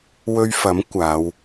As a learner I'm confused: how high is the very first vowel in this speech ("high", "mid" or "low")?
mid